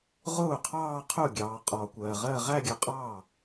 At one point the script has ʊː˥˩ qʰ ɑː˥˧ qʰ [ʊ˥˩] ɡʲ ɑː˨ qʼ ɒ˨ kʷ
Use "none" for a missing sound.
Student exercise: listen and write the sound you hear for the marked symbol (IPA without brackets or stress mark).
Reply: ʊ˥˩